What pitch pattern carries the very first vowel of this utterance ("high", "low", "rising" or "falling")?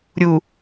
low